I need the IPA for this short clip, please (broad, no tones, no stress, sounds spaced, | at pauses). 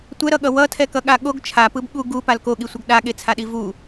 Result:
tʷ ɛ ɾ ʌ ɠ ʌ w ʌ tʰ ɛ k ʌ ɠ a ɠ o ɡ t͡ʃʰ a p ɯ b ɠ u ɡ u p a l k o ɠ i sʷ ʌ ɡ ɗ a ɠ e t͡sʰ a ɗ i v u